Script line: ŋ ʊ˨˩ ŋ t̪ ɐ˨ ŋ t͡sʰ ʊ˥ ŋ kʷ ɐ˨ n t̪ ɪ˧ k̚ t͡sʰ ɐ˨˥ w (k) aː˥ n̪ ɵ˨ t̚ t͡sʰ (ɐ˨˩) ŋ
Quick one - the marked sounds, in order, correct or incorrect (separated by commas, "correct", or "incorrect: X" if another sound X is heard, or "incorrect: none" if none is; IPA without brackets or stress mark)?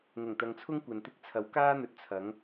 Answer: correct, incorrect: ɐ˨˥